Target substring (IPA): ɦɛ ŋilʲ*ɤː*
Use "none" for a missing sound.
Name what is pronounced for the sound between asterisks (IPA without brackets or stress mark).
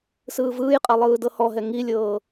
ɤː